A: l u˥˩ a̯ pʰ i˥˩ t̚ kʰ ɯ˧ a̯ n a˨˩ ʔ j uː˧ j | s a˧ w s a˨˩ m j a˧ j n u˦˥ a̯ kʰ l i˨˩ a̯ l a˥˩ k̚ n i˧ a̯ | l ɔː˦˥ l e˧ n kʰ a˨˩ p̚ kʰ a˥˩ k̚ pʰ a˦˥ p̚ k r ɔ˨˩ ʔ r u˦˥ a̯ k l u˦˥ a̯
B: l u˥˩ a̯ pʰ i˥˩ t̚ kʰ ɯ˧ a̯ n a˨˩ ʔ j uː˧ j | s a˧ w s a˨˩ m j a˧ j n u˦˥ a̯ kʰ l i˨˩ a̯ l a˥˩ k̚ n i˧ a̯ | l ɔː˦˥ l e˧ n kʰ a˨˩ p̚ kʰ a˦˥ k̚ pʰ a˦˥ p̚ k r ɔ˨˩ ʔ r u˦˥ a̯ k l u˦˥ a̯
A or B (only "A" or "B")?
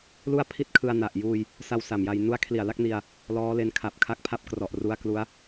B